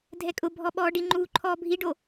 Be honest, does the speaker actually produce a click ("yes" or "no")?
yes